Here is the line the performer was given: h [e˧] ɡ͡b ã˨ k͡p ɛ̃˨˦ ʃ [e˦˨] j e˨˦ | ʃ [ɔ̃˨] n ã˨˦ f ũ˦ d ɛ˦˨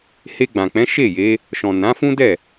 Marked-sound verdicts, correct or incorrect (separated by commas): correct, correct, correct